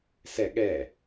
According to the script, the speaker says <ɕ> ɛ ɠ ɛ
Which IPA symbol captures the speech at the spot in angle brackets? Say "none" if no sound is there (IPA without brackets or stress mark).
s